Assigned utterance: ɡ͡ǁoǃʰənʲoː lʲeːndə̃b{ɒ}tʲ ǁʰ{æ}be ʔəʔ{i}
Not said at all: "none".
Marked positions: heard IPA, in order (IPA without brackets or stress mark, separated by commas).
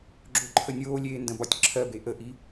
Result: ɒ, ɜ, i